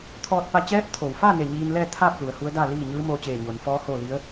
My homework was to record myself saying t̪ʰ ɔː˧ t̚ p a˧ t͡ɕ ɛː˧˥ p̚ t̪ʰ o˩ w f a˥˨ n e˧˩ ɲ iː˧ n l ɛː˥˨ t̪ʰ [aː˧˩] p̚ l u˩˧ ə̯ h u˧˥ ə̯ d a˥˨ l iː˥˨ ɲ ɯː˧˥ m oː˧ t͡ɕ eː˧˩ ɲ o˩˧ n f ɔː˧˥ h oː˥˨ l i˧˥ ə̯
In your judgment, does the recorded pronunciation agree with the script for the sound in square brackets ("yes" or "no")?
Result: no